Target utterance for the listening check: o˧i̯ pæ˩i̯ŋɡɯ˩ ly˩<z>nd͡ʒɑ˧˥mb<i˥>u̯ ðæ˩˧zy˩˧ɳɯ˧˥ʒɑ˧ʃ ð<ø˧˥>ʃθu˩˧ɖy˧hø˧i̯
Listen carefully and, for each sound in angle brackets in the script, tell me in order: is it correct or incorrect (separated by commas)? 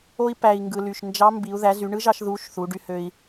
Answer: incorrect, incorrect, incorrect